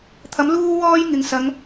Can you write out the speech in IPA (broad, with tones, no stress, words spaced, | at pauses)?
t̪ʰɐ˨˥m luː˧wɔː˧j ŋɪ˨ŋsɐ˨˧ŋ